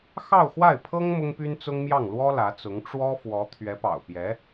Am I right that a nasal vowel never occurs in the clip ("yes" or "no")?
yes